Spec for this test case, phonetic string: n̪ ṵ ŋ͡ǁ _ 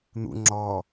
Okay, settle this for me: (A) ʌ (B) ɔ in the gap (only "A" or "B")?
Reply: B